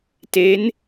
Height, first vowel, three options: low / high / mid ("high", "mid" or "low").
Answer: mid